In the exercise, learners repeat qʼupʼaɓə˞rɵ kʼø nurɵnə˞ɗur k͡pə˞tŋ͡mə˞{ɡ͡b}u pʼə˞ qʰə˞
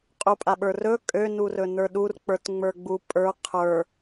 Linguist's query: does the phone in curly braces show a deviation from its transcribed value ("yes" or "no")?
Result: no